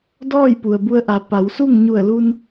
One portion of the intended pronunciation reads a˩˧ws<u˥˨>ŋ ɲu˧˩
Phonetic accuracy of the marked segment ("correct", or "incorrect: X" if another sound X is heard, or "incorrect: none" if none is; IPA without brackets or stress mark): correct